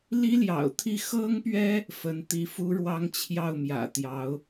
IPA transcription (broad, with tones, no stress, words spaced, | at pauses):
li˥ljɑ̰˨˩ʊ̯t̪ʰi˥˩ xɤ˥ŋpɥɛ˥ | fə˧˥nt̪i˧˥fu˥ɻwɑ˥ŋ t͡ɕʰjɑ˥˩ʊ̯mjä̰˨˩t̪jɑ˧˥ʊ̯